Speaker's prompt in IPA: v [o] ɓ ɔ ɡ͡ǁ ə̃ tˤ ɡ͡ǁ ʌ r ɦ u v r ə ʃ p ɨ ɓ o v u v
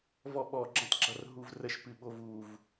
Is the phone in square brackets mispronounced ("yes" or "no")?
yes